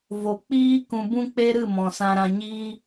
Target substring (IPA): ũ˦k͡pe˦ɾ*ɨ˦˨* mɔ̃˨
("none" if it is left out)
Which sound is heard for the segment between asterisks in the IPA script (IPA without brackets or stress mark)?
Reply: ɨ˦˨